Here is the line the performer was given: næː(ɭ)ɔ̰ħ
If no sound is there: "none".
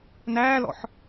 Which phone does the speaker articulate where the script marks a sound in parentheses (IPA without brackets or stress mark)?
l